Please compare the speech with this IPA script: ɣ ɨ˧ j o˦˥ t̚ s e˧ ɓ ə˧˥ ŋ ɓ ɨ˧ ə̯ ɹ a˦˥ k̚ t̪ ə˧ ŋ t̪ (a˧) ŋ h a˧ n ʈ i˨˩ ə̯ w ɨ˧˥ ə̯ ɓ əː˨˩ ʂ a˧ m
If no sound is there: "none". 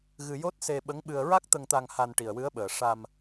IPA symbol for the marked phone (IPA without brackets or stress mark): a˧